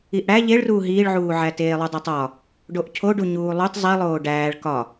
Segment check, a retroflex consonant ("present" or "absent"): present